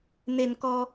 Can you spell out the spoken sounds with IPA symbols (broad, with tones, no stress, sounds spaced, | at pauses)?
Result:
n e˧ n k ɔ˧